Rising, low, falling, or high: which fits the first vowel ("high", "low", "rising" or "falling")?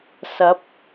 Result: rising